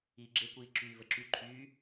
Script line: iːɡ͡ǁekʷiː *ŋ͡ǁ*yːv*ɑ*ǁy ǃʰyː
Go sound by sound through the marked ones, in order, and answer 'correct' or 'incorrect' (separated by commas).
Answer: incorrect, incorrect